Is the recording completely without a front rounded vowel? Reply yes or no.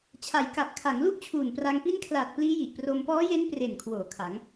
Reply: yes